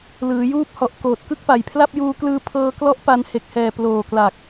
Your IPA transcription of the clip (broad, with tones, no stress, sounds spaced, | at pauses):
l ɯː˩˦ j uː˦˥ p̚ h ɔ˨˩ ʔ k oː˨˩ t̚ k ɯ˥˩ k̚ p a˨˩ j pʰ l a˥˩ p̚ j uː˧ k l ɯː˧ pʰ ɤː˧ k l ɔ˦˥ ʔ p a˧ n h e˨˩ k̚ h ɛː˨˩ p l oː˨˩ k l a˨˩ k̚